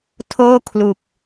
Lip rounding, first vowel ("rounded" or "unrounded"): rounded